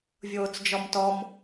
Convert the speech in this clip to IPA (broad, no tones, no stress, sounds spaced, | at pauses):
vʲ oː t͡s d͡ʒ ɔ m t ɔ m